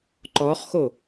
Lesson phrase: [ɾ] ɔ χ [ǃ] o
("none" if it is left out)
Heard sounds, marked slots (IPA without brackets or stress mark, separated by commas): ǃ, x